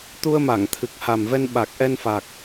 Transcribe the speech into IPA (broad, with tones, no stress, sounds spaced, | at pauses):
t̪ u˧ ə̯ m a˧˩ ŋ t̪ʰ ɨ˨˩ k̚ h a˨˩ m v ɛ˧ n ɓ a˨˩ k̚ ʔ ɛ˧ n f a˨˩ k̚